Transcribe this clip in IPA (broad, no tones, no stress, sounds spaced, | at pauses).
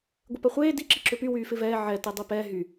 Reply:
ɡʷ ɪ p ɐ χʷ eː d i ǁ i ǁ ʏ p y w yː f ɪ v ɛː ʕ ɛ t e dˤ i p ɛː ɦ y